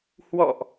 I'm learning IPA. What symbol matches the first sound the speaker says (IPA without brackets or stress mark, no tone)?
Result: h